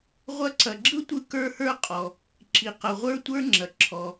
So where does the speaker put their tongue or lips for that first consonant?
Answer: uvula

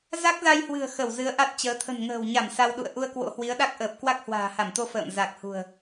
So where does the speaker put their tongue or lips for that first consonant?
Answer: tongue tip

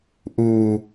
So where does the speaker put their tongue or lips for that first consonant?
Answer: throat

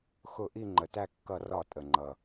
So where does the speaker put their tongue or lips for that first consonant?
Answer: velum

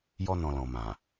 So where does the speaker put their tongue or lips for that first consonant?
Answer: palate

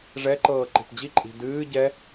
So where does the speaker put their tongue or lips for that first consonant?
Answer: retroflex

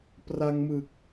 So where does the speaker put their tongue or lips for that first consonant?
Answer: lips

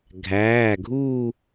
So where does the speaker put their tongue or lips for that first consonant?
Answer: velum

